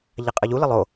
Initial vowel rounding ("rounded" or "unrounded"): unrounded